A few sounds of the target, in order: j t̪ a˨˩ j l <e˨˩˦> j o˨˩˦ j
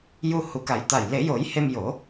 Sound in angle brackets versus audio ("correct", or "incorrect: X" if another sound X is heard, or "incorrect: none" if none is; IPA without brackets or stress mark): correct